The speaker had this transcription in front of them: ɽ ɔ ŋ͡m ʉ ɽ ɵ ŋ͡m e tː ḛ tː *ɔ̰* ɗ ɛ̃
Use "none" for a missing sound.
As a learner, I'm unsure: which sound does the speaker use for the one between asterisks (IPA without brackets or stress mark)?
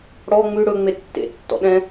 ɔ̰